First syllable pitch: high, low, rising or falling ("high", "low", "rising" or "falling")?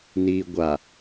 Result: low